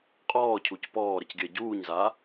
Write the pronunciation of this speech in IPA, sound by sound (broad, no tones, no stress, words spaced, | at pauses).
qʼɔːcʰuc pɔːɾəcɡʲɜ ɟuːɲza